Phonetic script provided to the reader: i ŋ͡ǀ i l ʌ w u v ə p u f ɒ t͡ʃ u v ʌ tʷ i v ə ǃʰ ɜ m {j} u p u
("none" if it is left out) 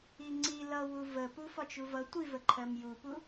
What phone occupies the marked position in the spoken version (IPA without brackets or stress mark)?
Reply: j